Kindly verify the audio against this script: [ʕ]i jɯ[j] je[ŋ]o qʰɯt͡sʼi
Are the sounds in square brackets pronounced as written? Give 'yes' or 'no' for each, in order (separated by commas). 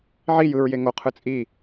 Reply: yes, no, yes